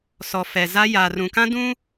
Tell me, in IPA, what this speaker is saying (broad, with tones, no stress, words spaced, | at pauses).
sɔ˨ fɛ˨ za˦ jaː˨rũ˨kã˦ dũ˦